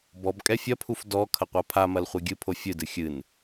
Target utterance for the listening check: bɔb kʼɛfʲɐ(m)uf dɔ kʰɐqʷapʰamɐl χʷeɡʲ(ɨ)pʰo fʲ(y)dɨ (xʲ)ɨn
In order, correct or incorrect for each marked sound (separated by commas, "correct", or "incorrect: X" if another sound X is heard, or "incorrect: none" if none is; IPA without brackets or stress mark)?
incorrect: pʰ, correct, incorrect: ɨ, correct